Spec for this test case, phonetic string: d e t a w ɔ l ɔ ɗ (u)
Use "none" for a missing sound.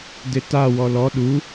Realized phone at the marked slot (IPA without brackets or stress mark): u